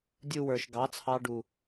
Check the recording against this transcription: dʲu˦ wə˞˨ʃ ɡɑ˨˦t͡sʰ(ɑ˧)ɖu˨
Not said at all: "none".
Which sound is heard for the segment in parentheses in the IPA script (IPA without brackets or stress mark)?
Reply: ɑ˧